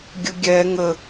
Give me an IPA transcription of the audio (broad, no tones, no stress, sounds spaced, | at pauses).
ɡʲ ə ɡʲ ɛ ŋ ə